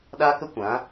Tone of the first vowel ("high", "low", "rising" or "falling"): high